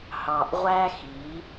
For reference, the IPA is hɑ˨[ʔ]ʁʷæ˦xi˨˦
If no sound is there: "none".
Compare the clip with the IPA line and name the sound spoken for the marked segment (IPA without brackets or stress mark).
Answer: ʔ